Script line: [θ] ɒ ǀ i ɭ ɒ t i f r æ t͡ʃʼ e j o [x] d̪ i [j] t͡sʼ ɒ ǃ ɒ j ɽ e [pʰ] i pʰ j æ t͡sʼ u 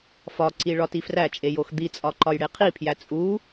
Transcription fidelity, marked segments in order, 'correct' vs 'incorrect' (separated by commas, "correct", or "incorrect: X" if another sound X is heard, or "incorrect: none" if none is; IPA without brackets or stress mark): incorrect: f, correct, incorrect: none, incorrect: qʰ